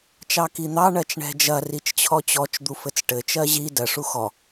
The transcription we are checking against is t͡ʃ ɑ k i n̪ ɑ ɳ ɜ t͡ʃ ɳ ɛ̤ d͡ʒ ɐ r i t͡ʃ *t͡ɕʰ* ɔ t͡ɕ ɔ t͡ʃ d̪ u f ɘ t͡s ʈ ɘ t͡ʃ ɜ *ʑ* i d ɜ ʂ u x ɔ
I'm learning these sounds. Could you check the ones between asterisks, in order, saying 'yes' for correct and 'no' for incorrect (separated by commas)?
yes, yes